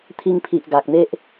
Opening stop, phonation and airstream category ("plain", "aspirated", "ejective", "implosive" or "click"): aspirated